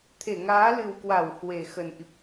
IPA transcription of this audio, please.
t̪ʰe˧˩ŋaː˨˦lɨ˨˩wkwa˧˩w hwe˨˩xə˨˩nʔi˨˩p̚

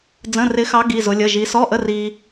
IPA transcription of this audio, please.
d͡zə̃˧˥˧rɪ˧˥xɑ˧˥ ɡi˧˥˧zʊ˧˥lʲə˧˥˧ ʒi˧˥ sɔ˧˥˧ʔə˧˥˧ ri˥

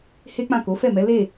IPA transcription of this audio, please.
he˦k͡pã˦˨ko˨˦ fɛ˦˨mɛ˨˦ le˦˨

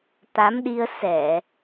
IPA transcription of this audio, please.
t̪a˨˦mɗi˧ə̯ sɛ˧˩˨

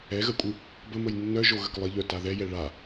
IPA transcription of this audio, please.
ɛɣəkʷʼɨ | bəməj nːœʒoɣək lˠɪʎœ taðɛjɛ ɭa

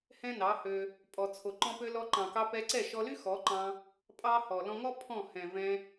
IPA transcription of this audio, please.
hɛ̃˦nɑ˨˦hø˧ | pʼɔ˨t͡sʰo˨ ǃɔ̃˧pø˧ lɔ˧ǃɑ̃˨kɑ˧ pɛ˧ǀɛ˦˨ʃɔ˧ly˦ xɔ˨˦ǃɑ̃˧ | pʼɑ˦hɔ˨ lɔ̃˧ŋɔ˦ pʰɔ̃˦˨hɛ̃˨ vɛ̃˧

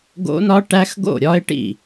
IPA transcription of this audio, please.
ɡo̰˦˥nɒ˦˥ ʈæ˦˥xɡo̰˥˨ɾʲɒ˦˥ɪ̯ʈḭ˥˨

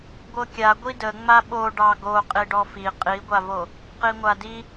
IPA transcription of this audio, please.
ɡʷɤkʲa ɡʷidə ŋ͡maɓo ɖɑɡo qʼiɖɔfi qʼiɡʷavo | qiŋʷadi

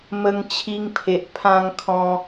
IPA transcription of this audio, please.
mə˧ŋt͡ɕʰi˧ŋpʰe˨ʔ pʰã˧ŋkʰɔ̃˧

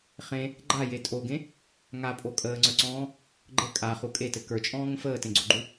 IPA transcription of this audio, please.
χẽ | ɡ͡ǃaje tʼoɡẽ | ŋapʼo kʼəːŋ͡ǀə˞ǀɔ̃ː | ɡ͡ǃɘ kʼaχu kʼetɘ kə˞t͡ʃʼɔ̃ːŋə̃ fəːtẽɡ͡ǀoɡ͡ǃu

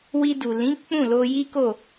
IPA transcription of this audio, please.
wi˧du˨lĩ˨˦ k͡pũ˦˨lo˧ji˦ko˦˨

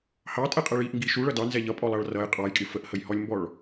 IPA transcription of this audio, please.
hɑtʼɛqʼɛɭ iʔŋɡi ʃuɭʌ dɑnzɛ ʎʌpʼɔlˠɑɭ rʌj qʼɑjkʼɪ fəʔhəjhɔlʲmbɔɭ

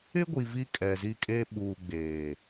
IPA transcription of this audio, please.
ɪ˦ɡʷi˨ vi˦kʼɛ˨zi˦kʼe˦ ɓuː˨ɡ͡beː˨

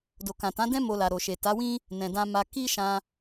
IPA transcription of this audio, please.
do˨kã˨tã˨˦dɛ̃˦ mo˧la˨ ɾo˨ʃe˨ta˨˦wĩ˦ | nɛ̃˨dã˧ ma˧ ki˦ʃã˧

